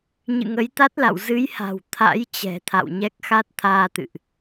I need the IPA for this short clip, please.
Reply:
ɲɨ̰˧˨ŋə˨˦jt̪a˦˥t̚la̰˧˨w zɨ˨˦jha̤˨˩w t̪ʰa̰˧˥jt͡ɕɛ̤˨˩ t̪ʰa̰˧˨wɲɛ˦˥k̚ xa˦˥t̚t̪ʰaː˧t̪ɨ̰˧˨ʔ

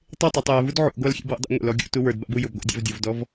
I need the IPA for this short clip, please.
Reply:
tˤetˤatˤ jɛvud ʕṵɡʷalxʲḛb wṵdˤḛŋʷḛl ɔɡʲṵtu wə˞dba̰bu jʊbɡʷa̰ dʲa̰vdʲuvdɔv

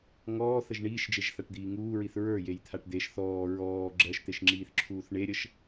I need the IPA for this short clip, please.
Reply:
ŋɔːθəʒ ɳiːʃd͡ʒeʒθaʈd̪iː ŋuːɹiθ ɹə˞jejt̪ʰaʈ d̪eʃ θɔː ɹɔː ɡ͡ǁɜʃt̪eʃŋ͡ǁiːθǁʰuːθ ɳeɾʲəʃ

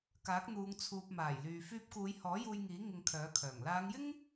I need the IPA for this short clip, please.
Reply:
kaː˨˥k̚n̪uː˨˧ŋ t͡sʰuː˨p̚maː˨˩jlyː˨ fyː˧p̚kuː˨˧jhɔː˨˥ juː˧jŋiː˨˥ ŋɪ˧ŋkʰœː˨˥kʰœː˨˩ŋ laː˨˧ŋjɪ˥ŋ

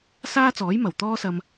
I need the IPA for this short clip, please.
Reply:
saː˥t͡sɔː˨˥jmɐ˨˩w t̪ɔː˥sɐ˧m

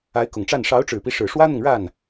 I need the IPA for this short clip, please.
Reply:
a˧˥ɪ̯kʊ˨˩ŋʈ͡ʂa˥˩n ʂɑ˧˥ʊ̯ʈ͡ʂɻ̩˨˩pi˦ʂɻ̩˨˩ ʂwä˥n̪ʊ˨ŋɻa˥˩n

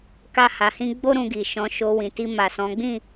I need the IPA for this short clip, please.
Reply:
ka˧ha˨hĩ˧ɡ͡bo˦ ɾũ˧ɡi˨ʃɔ̃˨˦ʃo˧ wĩ˨ti˧ma˨sɔ̃˨˦ ɡ͡bĩ˦˨

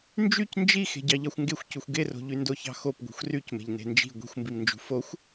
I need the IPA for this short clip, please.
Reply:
nd͡ʒyc nd͡ʒi xe̤ɟɑʎɑxʷŋɡexʷ cuxʷɡero̤ʎy ndoçɑ̤xop ɡʷi̤xʷrycme̤ʎ ne̤nd͡ʒi̤ ɡʷi̤xʷmbimnd͡ʒṳ foxʷ

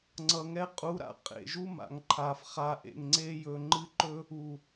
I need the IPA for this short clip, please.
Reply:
ŋ͡ǀʌ˨ŋɛ˧qʼu˨˦ɾa̰˧ qʼḛ˨ʒu˦ma̰˨ŋǃʰa˨f χa˨ʔḛ˨ŋŋ͡ǀe˧jɵ˨ ŋ͡ǃɨ˦ǃɵ˦ | u˨

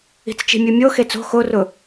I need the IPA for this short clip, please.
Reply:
i̤t͡st͡ʃi̤mʲumʲo xet͡so̤ xorʊ

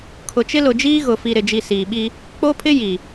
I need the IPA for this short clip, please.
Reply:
kʰʊ˨t͡ʃɪ˦lʊ˨d͡ʒiː˦ ɣʊ˨fi˨ɾɪ˨d͡ʒi˨ siː˨ɓi˦ | k͡po˦pʰɪ˦ ji˨

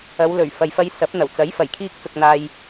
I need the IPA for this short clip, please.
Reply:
ɐ˨˧wlɵ˨˩ɥ fɐ˨jfɐ˧jsɐ˨˥p̚n̪ɐ˨˩w t͡sɐ˨˥j fɐ˨˩jkʰiː˧k̚t͡sʊ˨k̚ n̪aː˧j

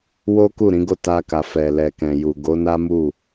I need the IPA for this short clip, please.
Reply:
wo˦ku˦˨ɾĩ˨˦ɡo˦˨ ta˧ka˨fɛ˨ lɛ˨kɛ̃˨ju˨ ɡo˨˦na˦mu˦˨

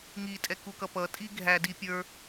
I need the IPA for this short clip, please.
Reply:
ŋi tʼɛkukʌpʌ tʼiɡʱæ dipʲə˞

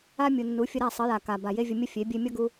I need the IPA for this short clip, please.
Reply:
a˦ mʲu˨nːu˨˦fʲə˧ɾa˦˨ sˤə˨˦ja˨ ka˨ ba˨je˦vʲə˧mʲə˦ fʲe˨˦ bʲe˧mʲʌ˦ɡu˧

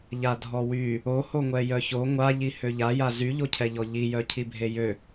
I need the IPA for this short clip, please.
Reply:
ʎadʱɔwy | ohoŋʷɛ jœço ŋʷaʎi høʎaja zyʎocʰɛʎɔ ʎijœcʰibʱe jø

